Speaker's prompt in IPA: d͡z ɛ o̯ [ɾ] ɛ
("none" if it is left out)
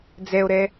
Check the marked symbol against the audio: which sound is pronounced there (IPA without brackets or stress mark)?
ɾ